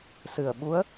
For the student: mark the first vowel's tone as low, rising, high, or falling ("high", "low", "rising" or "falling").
low